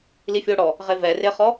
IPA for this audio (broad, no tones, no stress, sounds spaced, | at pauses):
l i fʲ o ɽ ɔ | ʁ e v ɛ r e χ ɔ